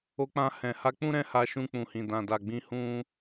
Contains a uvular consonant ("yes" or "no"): no